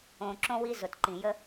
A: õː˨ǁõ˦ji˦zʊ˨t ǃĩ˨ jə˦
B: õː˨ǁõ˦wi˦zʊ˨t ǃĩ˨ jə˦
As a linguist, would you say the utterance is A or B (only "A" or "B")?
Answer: B